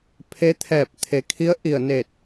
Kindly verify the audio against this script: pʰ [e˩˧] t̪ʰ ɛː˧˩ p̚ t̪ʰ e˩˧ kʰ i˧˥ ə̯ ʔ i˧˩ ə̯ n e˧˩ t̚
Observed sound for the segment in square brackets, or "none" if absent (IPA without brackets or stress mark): e˧˥